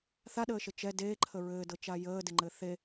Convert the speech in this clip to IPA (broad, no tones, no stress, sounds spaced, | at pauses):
θ a ɗ əː ʃ ə t͡ʃ ɛ d eː ǃʰ ə ɹ ɘː d ɤ t͡ʃ a j əː d ɪ ŋ͡ǃ ɘ θ e